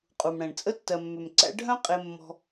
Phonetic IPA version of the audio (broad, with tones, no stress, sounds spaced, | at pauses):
qʼ u˨ m ɽ ɛ̃˨ ɳ t͡sʼ ə˦ tː ɜ˨ mː ʏ˨ m ǀ æ̰˦ ɖʱ œ̃˦ qʼ e˧ mː ɔ̤˧